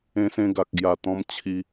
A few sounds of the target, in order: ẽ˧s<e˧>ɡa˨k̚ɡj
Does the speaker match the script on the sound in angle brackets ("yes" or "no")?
no